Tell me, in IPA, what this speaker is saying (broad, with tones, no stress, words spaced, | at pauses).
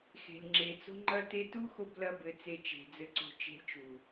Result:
xe̤˨lʲŋ͡ǁe˨t͡so̤˦ ŋ͡ǃɐ˦te˦ tu˦xo˧blɐ˧ bɘ˦t͡se˦t͡ʃe̤˧d͡zɘ˦ ǀo̤˦ t͡ʃe̤˦lʲt͡ʃu˨